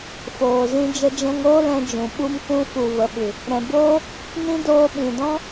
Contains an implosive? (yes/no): yes